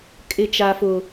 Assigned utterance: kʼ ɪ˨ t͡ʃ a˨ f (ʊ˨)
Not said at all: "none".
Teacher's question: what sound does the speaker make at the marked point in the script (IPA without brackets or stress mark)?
ʊ˨